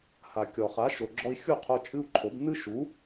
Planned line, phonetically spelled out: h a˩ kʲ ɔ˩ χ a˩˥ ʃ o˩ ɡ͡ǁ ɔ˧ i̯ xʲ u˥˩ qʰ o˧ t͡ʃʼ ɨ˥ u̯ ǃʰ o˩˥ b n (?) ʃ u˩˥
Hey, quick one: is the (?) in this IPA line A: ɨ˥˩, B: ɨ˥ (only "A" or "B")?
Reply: B